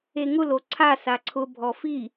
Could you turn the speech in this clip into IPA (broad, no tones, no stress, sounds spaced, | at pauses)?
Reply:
e ŋ ʊ l o ǀʰ a s a ǀʰ ʊ bʱ ɔ f i